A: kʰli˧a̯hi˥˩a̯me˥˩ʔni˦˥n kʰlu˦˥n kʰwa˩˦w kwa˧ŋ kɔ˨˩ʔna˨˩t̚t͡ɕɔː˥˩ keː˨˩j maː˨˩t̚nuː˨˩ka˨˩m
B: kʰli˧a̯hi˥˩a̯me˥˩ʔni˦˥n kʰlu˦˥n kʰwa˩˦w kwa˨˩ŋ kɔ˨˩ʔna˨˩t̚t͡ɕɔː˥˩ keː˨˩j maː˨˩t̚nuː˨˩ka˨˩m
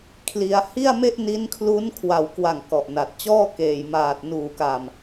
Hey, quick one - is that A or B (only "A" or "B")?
B